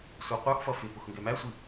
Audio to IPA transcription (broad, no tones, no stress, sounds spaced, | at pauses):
sʷ ɑ qʷ ə˞ x f ʌ f ɪ p ʊ x ŋ ɡ ɛ m æ sʷ i